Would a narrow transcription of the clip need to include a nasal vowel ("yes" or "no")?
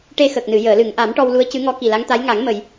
no